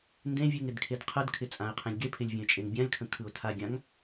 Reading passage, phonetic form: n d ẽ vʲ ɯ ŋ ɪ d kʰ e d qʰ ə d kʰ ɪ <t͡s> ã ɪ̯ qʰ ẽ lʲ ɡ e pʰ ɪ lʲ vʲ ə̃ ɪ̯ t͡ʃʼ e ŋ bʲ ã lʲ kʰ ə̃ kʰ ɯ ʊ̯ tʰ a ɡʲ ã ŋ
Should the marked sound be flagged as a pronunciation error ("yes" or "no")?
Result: yes